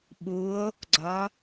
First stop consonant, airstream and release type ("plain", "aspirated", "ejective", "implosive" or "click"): implosive